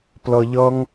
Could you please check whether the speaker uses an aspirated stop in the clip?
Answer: no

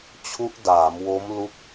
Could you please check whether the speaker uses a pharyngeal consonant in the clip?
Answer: no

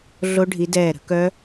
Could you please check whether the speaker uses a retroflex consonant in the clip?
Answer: yes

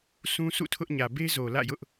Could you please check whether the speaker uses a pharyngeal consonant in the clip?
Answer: no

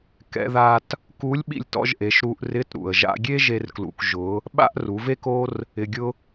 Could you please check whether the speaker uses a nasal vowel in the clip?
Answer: no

